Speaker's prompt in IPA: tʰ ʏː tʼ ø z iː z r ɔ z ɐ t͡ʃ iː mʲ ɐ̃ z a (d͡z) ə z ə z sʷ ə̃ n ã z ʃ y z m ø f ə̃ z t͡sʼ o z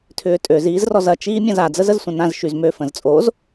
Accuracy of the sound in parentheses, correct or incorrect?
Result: correct